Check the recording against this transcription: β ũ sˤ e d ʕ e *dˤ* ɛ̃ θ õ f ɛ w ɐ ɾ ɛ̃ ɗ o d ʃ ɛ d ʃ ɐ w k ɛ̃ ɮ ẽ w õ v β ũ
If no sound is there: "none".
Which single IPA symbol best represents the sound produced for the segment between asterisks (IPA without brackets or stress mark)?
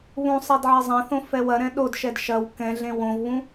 zˤ